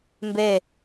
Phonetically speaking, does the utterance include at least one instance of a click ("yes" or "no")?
no